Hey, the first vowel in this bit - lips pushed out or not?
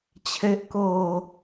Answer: no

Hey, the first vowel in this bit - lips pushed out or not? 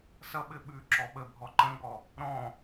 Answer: no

